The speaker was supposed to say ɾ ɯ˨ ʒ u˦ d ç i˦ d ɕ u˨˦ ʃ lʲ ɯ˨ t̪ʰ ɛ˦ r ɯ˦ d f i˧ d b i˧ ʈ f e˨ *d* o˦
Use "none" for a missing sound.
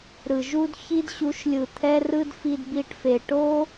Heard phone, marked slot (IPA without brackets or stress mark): ʈ